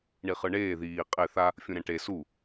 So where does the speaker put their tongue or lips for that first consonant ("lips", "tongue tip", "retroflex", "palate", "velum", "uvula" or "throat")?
retroflex